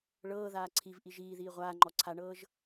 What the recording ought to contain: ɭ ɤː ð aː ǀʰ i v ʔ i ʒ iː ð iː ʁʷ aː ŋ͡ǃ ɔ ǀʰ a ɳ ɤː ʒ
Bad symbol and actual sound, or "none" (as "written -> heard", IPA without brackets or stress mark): none